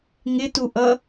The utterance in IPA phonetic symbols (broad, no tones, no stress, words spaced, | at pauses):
ŋɪtuʔʌ